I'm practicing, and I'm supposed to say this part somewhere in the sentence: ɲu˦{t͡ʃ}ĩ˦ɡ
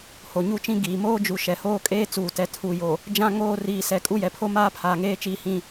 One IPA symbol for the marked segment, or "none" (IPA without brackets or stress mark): t͡ʃ